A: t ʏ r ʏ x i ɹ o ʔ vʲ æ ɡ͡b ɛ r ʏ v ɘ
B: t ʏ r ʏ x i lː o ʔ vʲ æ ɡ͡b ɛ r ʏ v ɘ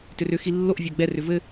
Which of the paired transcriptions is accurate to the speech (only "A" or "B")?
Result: B